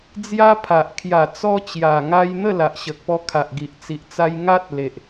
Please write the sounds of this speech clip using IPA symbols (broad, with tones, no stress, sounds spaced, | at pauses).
d͡z j a˦ pʰ a˨ ʔ kʰ j a˨˩ t͡s ɔ˧ t͡ɕ j a˨˩ ŋ a˧ j n̪ ə˥˧ l a˨ ʔ ɕ ə˨ k̚ p ɔ˧ kʰ a˨ ʔ ɡ i˨ ʔ t͡s i˨ ʔ t͡s a˧ j ŋ a˦ t̚ l e˨ ʔ